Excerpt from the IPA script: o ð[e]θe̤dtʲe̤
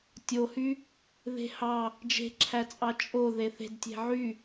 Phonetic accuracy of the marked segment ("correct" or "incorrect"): correct